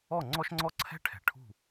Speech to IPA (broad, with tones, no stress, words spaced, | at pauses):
ɔ˥˩ŋ͡ǀɔ˥ʃŋ͡ǀɔ˥ ǀʰɛ̤˥ʈʰɛ̤˩ ʈʰṳ˥˩